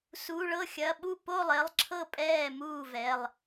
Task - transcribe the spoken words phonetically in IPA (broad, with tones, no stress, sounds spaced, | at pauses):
s u˩˧˩ ɭ ɤ˥˩ xʲ ɐ˩˧˩ ɓ u˥˩ p o˥˩ lˠ e˩˧˩ lˠ ǁʰ ɤ˥˩ pʼ ɛː˥˩ m uː˥˩ v ɛ˩˧˩ lˠ